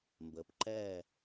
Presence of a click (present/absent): present